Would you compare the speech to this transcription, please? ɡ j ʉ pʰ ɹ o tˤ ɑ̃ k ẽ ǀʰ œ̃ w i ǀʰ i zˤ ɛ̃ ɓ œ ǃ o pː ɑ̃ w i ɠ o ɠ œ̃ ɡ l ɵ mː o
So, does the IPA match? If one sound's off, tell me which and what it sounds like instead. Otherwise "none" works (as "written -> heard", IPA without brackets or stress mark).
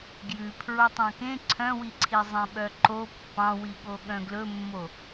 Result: none